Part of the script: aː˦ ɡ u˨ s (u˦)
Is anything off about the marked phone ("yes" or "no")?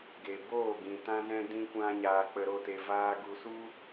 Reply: no